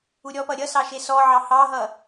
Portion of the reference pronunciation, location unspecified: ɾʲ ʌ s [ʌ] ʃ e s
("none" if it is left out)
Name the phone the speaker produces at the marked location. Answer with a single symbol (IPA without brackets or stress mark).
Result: ɑ